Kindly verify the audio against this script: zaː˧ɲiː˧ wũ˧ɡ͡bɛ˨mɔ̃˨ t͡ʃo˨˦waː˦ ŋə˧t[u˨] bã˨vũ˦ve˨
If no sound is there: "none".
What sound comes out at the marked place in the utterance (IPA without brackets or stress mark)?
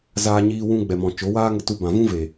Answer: u˧